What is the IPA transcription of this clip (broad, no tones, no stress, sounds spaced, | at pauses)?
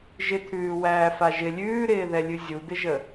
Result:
ʒ ɪ t̪ʰ ʉː w æː f a ʒ ɪ lʲ ʉː ɾ ɪː ð ɛ lʲ ʉ zʲ u d̪ ɪ ʒ ə